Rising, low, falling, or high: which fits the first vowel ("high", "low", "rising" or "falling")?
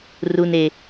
low